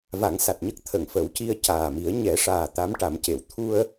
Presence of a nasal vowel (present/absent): absent